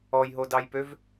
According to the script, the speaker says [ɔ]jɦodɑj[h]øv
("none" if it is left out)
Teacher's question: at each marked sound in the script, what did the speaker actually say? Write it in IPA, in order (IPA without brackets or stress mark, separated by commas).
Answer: ɔ, p